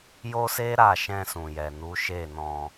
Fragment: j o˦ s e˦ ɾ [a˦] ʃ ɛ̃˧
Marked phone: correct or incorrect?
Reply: incorrect